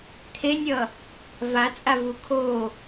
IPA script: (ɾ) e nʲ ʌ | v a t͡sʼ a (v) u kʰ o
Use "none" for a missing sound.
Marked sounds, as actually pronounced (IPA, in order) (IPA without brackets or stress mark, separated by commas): t̪ʰ, v